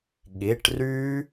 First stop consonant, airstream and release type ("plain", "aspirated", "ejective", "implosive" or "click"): implosive